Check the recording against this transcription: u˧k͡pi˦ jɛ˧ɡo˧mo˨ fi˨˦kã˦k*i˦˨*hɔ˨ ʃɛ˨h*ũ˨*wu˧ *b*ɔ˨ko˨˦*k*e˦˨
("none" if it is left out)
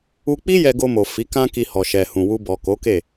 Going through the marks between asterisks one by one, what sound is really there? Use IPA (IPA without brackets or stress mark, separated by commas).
i˧, ũ˨, b, k